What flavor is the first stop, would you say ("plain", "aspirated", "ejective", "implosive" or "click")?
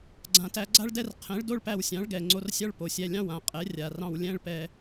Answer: click